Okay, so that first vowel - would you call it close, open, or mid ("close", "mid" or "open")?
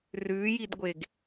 close